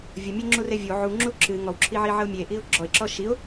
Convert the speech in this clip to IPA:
vʲ ə mʲ e ŋ͡ǁ u r e vʲ o ʕ u ŋ͡ǁ u ǁ ɨ ŋ ɔ w ǁʰ i ʕ i ʕ ə ʊ̯ mʲ e ʔ i ʊ̯ ɡ͡ǁ ɔ ɪ̯ ǁ ɔ ʃ i ʊ̯

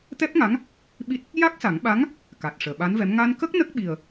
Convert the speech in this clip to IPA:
t̪ ɛ˦˥ p̚ ŋ a˧˥ ŋ | ɓ i˦˥ t̚ | j a˦˥ k̚ s a˨˩˦ ŋ ɓ a˧˥ ŋ | k a˨˩ t̚ ʂ əː˨˩˨ ɓ a˧˥ n v ɛ˧˥ m ŋ a˧ n k ə˦˥ k̚ n ə˦˥ k̚ ɓ i˨˩ ə̯

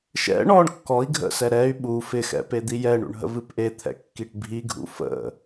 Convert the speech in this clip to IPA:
ʃ ɛ̰ ɳ ɔ ɳ kː ɔ i̯ ɡʱ ə̰ s ɛ ɾ ɛ y̯ ɓ u f ɪ x ɛ̰ p e d̪ i j ɛ ɳ ṵ ɳ ɦ ə̰ v ɨ p ʔ e t̪ʰ ɛ̰ kː i ʈ bʱ i ɡʱ ṵ f ə̰

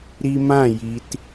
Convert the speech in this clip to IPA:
ɾ i˧ m ã˦˨ j i˨ t

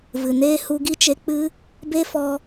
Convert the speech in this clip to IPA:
v ɨ˨ n eː˦ h u˧ ɡ i˦ t͡ʃ e˧ k͡p ɨ˦ | b e˦ f ɔ˧

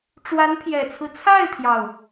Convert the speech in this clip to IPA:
ʈ͡ʂ w a˧˥ n pʰ j ɛ˨˩ t͡sʰ ɹ̩˦ t͡sʰ a˥˩ ɪ̯ t̪ʰ j ɑ˩ ʊ̯

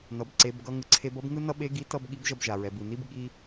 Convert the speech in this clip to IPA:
n ʌ˩ b ǀ e˩˧ b ɡ ʌ˧ ŋ ɯ˩ ǀʰ e˧ b ʌ˧˥ b ŋ ɯ˥ n ʌ˥ ɓ e˧˥ ɡ i˧˥ t ʌ˥ b ɠ i˧˥ b ʒ ʌ˧ b ʒ a˩ ɹ ɛ˩ b ɯ˩ n i˥ b ɠ i˥

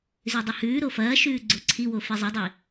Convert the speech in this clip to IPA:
z ʉ dˤ ɐ h ʉː ɾ o f ɐː ʃ ʉː ɡ͡ǀ o ǀʰ i w o f i zˤ ɵ dˤ i

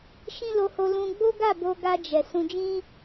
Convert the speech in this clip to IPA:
ʃ ĩ˦ l o˧ h o˧ l ũ˧ ɡ͡b o˦ ɡ a˦˨ b o˧ ɡ a˧ d͡ʒ ɛ˨ s ũ˧ d͡ʒ ĩ˦

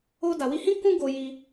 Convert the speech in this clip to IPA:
o˧ d a˨ w i˧ h ĩ˦ k ũ˦ ɡ o˧ j i˧

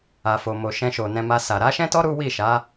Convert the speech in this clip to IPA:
a˨ f o˨ m o˨ ʃ ɛ̃˧ ʃ o˨ n ɛ̃˧ m a˧ s a˨ ɾ a˨˦ ʃ ɛ̃˦ t ɔ˦ ɾ u˦ w i˦˨ ʃ a˨˦

